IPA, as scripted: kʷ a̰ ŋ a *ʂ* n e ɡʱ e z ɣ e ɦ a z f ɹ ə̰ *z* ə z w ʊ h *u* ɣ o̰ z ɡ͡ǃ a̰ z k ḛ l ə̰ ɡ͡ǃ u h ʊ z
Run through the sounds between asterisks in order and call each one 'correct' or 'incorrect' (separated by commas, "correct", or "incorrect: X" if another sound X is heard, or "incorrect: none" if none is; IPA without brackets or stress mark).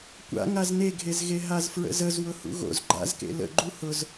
incorrect: z, correct, incorrect: ṵ